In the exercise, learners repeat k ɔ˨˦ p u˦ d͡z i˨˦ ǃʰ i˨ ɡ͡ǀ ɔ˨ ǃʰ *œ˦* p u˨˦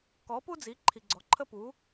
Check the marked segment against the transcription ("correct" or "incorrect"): incorrect